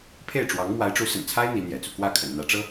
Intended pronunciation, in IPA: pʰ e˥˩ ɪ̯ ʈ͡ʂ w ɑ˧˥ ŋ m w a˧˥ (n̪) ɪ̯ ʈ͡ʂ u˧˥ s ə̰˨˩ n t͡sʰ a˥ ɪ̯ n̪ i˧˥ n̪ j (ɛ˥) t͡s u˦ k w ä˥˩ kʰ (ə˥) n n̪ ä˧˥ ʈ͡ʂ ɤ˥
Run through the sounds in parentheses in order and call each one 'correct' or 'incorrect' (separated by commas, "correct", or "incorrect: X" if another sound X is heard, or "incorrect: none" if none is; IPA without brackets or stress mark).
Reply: incorrect: none, incorrect: ɛ̰˨˩, incorrect: ə̰˨˩